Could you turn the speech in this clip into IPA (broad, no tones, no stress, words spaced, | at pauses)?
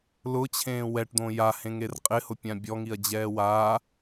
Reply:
lʊt͡ɕʰẽː wɛʈd̪õ jahẽŋer qʼɪhʊpʲã bʲɔŋiɐ̯d͡ʑɛː wa